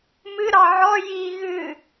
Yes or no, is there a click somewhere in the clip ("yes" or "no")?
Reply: no